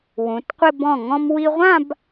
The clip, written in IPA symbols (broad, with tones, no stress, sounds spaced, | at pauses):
w ũ˩˧ t qʷ ɪ˥˧ b ɔ̃˧˩ ŋ ɔ̃˧ m w i˧ ʁʷ ã˥˧ b